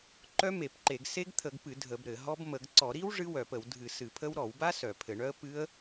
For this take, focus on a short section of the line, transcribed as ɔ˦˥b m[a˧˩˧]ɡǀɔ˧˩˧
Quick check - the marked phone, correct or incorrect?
incorrect: ə˧˩˧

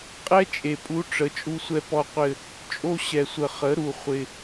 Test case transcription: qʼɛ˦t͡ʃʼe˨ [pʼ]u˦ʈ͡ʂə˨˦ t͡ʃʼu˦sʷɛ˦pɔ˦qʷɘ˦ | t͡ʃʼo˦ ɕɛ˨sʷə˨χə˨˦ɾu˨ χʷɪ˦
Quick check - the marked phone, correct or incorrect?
correct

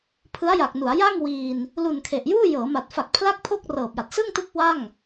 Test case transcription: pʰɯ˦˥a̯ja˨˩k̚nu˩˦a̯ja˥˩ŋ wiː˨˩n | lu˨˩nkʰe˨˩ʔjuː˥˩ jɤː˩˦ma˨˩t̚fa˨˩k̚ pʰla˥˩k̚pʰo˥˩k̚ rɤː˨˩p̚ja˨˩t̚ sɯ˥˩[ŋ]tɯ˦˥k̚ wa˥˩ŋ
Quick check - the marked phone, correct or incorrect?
correct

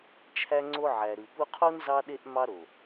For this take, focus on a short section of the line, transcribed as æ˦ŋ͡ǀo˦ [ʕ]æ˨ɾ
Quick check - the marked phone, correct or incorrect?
correct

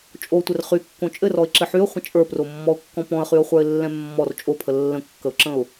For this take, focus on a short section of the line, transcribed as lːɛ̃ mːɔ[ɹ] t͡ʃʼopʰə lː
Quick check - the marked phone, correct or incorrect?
incorrect: r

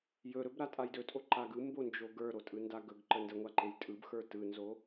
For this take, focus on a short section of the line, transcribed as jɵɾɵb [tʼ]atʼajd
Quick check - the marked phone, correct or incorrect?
incorrect: ɾ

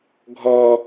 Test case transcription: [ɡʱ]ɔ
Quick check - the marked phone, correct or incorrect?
correct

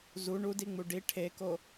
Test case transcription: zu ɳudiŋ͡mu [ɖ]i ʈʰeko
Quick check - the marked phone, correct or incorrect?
correct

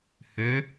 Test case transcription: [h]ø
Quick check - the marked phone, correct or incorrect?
correct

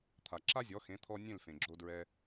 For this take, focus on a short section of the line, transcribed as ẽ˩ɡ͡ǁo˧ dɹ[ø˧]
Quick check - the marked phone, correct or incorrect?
incorrect: ɛ˧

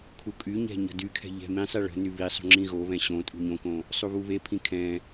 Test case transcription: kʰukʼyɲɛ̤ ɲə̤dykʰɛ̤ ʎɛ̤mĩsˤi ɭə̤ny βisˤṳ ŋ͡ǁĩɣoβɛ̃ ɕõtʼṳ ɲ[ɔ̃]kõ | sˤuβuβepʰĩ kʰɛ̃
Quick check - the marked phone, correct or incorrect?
incorrect: õ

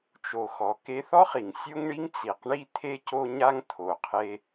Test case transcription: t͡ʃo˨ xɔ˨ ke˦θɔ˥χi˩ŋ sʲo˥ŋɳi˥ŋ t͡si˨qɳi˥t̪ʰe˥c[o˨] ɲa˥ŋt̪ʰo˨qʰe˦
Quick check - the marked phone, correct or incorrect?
incorrect: o˥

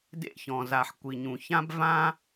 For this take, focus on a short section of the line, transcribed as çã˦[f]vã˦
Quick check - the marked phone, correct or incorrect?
incorrect: b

